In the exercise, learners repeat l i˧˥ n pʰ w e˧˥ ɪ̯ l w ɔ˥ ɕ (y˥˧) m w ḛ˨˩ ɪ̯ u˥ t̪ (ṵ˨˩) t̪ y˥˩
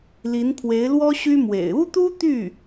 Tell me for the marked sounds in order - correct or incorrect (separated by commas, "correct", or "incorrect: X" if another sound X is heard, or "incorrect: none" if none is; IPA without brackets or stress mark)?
incorrect: y˥, incorrect: u˥